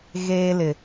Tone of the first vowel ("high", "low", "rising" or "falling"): high